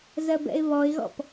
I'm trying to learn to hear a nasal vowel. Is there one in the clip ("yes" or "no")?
no